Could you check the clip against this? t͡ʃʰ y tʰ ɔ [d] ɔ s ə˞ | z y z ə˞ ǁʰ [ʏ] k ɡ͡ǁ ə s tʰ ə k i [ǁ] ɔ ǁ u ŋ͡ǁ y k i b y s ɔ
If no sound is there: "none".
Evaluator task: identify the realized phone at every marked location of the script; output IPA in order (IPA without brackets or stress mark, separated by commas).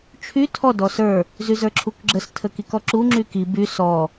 d, u, k